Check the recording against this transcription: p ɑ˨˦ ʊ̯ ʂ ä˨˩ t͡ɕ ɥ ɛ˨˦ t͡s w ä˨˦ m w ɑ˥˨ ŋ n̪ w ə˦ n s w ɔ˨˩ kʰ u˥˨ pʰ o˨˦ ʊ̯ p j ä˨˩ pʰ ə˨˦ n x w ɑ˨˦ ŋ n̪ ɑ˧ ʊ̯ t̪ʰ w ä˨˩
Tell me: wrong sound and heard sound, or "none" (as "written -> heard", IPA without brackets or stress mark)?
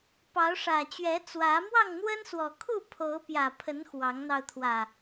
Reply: none